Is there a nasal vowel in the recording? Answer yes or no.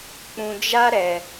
yes